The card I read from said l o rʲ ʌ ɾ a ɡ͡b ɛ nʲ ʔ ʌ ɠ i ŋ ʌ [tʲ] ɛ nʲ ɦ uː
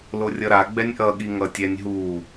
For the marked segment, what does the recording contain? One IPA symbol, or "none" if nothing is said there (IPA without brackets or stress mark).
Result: tʲ